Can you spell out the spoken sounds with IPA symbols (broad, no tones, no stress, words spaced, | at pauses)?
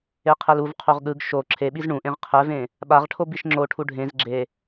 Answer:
eqʰɛluv qʰoʁɠɯɡ ʃo ǁʰeɓiz ɳũʔẽʁ qʰɛvẽ | ɓaʁʈʰobiʃ ŋ͡ǁoʈʰu ɖʱẽz ɡ͡ǁe